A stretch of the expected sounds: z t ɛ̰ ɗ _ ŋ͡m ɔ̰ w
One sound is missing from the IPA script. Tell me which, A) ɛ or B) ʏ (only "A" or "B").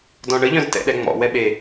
A